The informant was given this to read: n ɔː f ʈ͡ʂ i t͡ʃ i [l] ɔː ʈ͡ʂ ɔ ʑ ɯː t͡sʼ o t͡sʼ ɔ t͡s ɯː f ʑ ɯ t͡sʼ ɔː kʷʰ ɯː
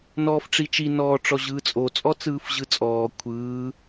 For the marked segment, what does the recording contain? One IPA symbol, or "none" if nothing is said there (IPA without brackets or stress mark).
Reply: n